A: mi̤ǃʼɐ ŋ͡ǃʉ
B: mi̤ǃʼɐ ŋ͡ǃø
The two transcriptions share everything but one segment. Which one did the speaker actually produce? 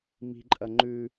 A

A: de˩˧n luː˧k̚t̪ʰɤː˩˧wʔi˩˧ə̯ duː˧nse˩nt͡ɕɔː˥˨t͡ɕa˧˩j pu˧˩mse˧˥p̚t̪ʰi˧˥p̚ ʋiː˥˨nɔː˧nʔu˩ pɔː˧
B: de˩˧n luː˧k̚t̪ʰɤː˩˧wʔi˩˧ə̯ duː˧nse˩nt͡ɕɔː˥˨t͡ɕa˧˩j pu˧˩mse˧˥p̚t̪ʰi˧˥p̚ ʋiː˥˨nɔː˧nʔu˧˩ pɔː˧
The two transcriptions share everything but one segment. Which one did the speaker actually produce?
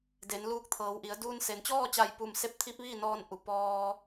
A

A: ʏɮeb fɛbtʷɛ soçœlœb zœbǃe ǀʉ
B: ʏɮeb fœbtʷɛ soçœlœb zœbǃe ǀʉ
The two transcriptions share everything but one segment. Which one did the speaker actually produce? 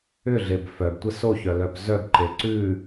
B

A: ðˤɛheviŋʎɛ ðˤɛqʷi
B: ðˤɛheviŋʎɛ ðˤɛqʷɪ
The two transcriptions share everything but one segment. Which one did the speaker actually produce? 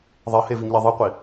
A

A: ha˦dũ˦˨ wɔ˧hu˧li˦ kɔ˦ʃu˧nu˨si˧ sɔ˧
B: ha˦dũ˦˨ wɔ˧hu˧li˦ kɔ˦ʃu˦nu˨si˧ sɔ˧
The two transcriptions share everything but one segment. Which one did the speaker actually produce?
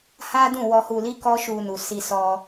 A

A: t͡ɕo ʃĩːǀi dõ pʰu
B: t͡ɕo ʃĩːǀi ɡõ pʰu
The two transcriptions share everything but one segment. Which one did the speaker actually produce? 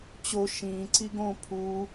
B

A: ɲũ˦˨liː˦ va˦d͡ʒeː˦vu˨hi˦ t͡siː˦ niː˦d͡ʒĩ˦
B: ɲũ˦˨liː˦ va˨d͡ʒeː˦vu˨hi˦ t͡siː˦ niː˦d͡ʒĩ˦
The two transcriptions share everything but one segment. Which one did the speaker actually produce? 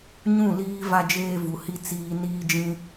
A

